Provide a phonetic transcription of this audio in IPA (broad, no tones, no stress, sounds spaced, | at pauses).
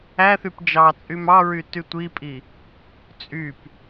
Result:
æ θ y p d͡ʒ ɑ t͡sʼ y m ɑ ɹ y t y tʷ i pʼ i | t͡sʼ y p